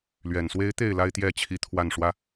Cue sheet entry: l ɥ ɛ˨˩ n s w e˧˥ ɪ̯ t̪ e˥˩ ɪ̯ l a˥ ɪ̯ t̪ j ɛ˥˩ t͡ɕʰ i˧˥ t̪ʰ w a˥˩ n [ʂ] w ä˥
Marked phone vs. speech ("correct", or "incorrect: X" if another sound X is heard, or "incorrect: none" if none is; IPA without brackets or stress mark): correct